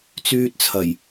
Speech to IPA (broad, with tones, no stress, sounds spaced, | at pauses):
t͡s yː˧ t̚ t͡sʰ ɐ˨˩ j